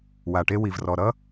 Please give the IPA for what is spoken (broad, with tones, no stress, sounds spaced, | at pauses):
w a˨ ʈ e˦ w i˨ v r ɔ˨ ɾ ʌ˦